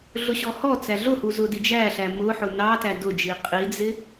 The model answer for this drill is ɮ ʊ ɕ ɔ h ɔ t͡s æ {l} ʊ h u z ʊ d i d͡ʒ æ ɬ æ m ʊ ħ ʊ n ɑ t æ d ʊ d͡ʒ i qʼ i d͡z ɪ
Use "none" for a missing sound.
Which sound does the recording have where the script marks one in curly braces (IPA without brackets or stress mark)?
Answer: ɮ